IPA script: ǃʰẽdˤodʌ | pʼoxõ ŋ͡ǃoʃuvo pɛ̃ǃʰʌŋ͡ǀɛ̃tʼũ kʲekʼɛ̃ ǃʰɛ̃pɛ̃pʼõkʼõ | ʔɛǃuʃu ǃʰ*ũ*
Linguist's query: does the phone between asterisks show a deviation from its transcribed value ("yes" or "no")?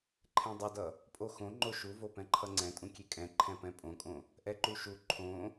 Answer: yes